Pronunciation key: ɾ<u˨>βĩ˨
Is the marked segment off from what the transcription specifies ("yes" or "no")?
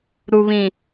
no